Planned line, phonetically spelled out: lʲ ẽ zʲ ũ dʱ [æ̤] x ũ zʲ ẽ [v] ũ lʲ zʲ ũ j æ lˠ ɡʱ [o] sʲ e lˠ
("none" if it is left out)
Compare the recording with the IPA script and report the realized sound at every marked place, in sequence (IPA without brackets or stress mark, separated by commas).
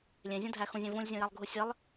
æ, v, u